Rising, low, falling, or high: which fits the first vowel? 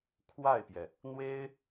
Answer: falling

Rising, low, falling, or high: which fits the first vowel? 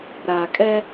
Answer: low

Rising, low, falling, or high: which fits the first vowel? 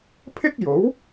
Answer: high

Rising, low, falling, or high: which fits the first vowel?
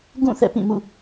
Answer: falling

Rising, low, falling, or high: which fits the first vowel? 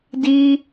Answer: high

